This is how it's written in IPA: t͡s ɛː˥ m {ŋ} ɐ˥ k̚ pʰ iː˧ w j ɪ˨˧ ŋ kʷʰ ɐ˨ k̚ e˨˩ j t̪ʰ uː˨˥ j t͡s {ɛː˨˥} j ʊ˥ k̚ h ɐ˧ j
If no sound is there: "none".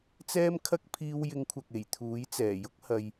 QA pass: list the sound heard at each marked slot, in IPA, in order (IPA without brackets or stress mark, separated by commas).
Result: kʰ, ɛː˨˩